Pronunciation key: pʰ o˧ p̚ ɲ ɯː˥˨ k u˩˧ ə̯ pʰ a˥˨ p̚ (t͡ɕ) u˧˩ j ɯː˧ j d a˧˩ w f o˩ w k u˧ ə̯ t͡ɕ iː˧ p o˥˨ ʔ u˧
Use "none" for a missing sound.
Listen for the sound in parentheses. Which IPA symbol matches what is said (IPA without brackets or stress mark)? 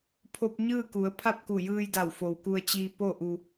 k